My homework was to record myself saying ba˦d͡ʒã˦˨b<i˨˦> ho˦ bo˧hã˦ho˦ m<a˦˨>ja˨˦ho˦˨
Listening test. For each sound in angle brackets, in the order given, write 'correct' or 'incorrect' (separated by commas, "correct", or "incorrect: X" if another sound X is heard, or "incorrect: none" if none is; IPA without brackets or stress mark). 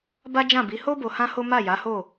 correct, correct